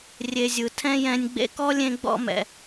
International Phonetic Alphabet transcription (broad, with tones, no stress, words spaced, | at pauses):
rʲe˨zʲɯ˩ tʰɛ̃˥jɛ̃˦nʲ ɡ͡bḛ˦kɔ˥lʲẽ˦ ɡ͡bɔ̰˦mɛ̰˨